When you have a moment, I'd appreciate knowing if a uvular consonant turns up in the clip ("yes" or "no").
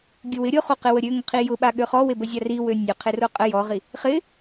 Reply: yes